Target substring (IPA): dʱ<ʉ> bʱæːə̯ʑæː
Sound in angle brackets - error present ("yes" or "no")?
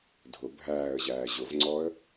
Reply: yes